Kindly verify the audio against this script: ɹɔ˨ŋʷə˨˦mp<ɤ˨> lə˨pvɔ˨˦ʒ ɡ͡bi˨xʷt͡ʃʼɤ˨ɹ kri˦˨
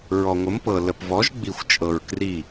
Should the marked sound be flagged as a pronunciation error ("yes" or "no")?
no